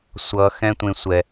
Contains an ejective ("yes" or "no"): no